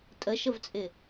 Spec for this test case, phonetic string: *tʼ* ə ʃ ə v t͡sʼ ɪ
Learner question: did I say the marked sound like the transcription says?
yes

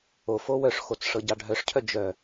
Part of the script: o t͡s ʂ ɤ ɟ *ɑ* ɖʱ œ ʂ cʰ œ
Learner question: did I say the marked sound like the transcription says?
yes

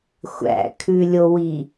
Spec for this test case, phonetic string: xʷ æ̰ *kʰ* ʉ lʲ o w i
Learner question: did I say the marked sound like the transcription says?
yes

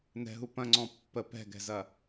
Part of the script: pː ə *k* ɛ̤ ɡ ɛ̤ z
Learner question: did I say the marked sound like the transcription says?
no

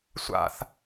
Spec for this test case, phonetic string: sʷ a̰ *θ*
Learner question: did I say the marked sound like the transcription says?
yes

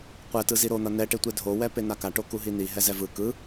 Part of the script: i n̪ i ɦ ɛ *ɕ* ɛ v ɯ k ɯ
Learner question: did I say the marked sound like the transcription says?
no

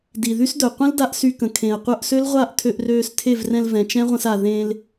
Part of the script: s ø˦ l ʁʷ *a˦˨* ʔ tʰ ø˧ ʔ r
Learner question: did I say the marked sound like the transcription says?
yes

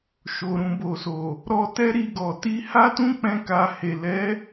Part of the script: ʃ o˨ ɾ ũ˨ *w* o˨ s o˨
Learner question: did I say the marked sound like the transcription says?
no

